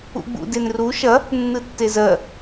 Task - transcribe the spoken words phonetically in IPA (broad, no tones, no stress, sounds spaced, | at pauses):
ṵ ɡ͡b ṵ d e n r u ʃ ɐ | nː ɯ tː e z ɜ